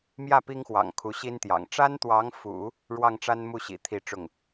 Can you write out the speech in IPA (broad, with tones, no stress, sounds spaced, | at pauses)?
m j ä˥˩ p i˥ ŋ x w ɑ̰˨˩ ŋ kʰ u˧˥ ɕ i˥ n t̪ j ɑ̰˨˩ ŋ ʈ͡ʂ a˥ n t̪ w ɑ˧˥ ŋ f ṵ˨˩˦ | ɻ w ɑ˥˩ ŋ ʈ͡ʂ a˥ n m u˥˩ ɕ ḭ˨˩ t̪ʰ i˥˧ ʈ͡ʂ ʊ˥˩ ŋ